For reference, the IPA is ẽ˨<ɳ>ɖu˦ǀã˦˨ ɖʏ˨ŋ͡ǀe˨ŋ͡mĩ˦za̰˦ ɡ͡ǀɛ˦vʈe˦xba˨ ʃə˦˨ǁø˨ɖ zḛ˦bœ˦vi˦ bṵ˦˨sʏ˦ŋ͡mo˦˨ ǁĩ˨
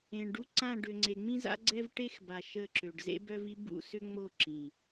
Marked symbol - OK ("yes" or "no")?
yes